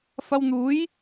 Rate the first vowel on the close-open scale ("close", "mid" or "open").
open